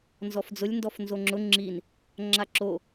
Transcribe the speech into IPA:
n z ɔ f d͡z ʊ lʲ n d ɔ f n z o ŋ͡ǁ ʊ ŋ͡ǁ i n | ŋ͡ǁ a ǁ o

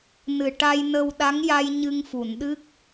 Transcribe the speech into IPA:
n ɨ˨˩ ʈ a˧ j n ə˧ w ɗ a˧˥ ŋ j a˧ j ɲ ɨ˧ ŋ f u˨˩˨ n ɗ ɨ˦˥ k̚

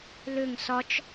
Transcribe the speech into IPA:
l ʏ ŋ s ɒ t͡ʃ

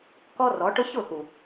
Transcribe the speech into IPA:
k ɔ˧ r ɔ˨˦ ʈ ʊ˦ ç ʊ˦˨ x u˨

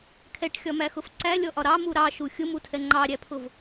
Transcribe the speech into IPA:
kʰ ɛ ʈ xʲ ɒ m æ x ʊ f ǀ æ lʲ ɔ ʔ ɒ ɾ ɑ m u ɾ ɑ ʃ u xʲ ʊ m u tʰ ɛ ŋ͡ǃ ɑ ɾʲ æ pʰ ʊ v

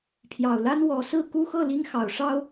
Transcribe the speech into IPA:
pʰ j ɑ˨˩ ʊ̯ l a˦ n w ɔ˨˦ s ɹ̩˥˨ k u˦ x ɤ˥˨ l i˦ ŋ x ɑ˨˩ ʊ̯ ʂ ɑ˦ ʊ̯

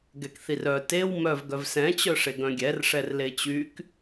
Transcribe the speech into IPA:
ɡ ɛ k θ i r œ t e w m œ v ɡ œ v s ɛ̃ t͡ɕ œ ʂ e ɡ œ̃ ɡʲ ɛ r ʂ ɛ r l e t͡ɕ y k

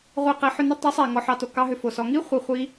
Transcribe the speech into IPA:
ʁʷ i˧ q ɛ˨˦ ħ ʏ˧ n ʏ˦ tˤ i˨˦ sˤ ɛ˨ ŋ ɔ˧ ħ ɑ˧ t o˨ k ɑ˦ ɦ ʏ˧ f o˨ s ɔ˧ ŋ i˦ χʷ i˧ χʷ i˦

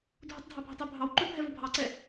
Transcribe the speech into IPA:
dʱ u tˤ dʱ ɑ bʱ ʊ tˤ u bʱ ɑ w ǃ ʊ bʱ ɛ v ʊ bʱ ɑ ǀ ɛ

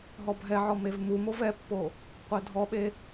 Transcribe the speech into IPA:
ɦ ɔ bʱ ɛ ʕ ɔ m e v m u m o v ɛ pː o | qʷ ɛ dʱ ɔ ɓ e

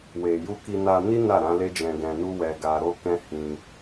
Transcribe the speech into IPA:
w e˨ j u˧ k i˧ n a˧ n i˦ n a˦˨ ɾ ã˨˦ l e˦ d͡ʒ ɛ̃˧ ɡ ɛ̃˧ n u˦ w ɛ˧ ɡ a˧ ɾ o˦ k ɛ̃˦ h ĩ˧

